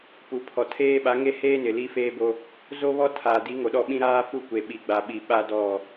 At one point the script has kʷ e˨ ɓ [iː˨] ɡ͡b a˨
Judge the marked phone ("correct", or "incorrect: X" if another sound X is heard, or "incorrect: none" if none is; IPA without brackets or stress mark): incorrect: i˨